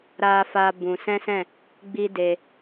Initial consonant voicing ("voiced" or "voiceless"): voiced